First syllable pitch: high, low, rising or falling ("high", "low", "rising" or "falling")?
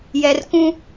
low